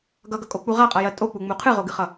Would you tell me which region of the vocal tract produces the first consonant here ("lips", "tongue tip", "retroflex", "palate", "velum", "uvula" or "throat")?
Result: velum